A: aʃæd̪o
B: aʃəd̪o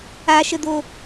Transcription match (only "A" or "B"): B